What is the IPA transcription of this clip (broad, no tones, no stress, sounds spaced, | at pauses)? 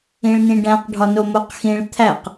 ĩ ɭ n ĩ ɖ æ̃ q ɖʱ ɒ n o m o q x ĩ ɭ t̪ʰ æ q